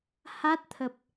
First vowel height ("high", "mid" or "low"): low